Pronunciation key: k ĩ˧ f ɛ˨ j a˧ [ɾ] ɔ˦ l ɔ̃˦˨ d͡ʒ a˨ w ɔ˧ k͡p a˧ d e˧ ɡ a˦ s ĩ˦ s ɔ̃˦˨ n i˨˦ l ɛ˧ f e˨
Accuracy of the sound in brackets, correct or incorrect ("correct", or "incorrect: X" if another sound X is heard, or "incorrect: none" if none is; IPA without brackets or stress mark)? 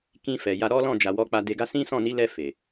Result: correct